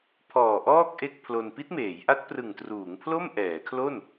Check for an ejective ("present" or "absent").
absent